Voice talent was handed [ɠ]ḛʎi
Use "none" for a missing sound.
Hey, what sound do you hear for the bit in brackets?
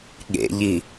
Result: ɠ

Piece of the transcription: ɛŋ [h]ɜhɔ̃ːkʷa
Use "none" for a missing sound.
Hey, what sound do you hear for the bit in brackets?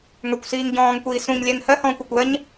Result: h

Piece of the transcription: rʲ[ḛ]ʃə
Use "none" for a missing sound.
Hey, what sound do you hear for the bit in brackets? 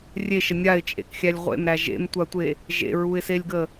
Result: e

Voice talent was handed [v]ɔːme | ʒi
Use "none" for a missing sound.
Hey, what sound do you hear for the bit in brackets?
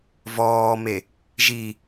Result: v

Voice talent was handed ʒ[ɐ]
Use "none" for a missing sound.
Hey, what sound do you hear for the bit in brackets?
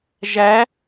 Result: æ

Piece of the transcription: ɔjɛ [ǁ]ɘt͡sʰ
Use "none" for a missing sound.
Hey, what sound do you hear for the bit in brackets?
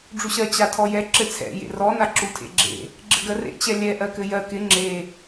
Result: ǁ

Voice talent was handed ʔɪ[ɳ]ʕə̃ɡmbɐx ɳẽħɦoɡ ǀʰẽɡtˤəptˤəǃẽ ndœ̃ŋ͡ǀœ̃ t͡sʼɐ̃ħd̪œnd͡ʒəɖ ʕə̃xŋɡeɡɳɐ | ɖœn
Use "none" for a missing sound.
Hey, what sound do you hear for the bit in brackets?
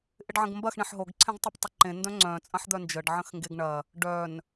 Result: ɖ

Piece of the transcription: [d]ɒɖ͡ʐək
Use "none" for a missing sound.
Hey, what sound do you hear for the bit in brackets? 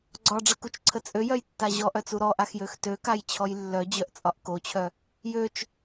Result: ɡ͡ǀ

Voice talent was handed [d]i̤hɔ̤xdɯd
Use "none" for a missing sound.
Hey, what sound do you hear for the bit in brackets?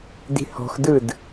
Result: d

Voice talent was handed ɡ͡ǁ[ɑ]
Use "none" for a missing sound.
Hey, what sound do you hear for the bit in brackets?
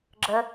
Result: ə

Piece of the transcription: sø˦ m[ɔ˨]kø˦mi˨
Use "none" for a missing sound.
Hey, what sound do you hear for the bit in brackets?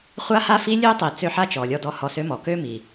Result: ɔ˨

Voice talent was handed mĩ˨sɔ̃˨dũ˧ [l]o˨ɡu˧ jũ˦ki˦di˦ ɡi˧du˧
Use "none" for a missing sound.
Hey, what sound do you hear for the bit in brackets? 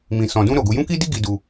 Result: ɾ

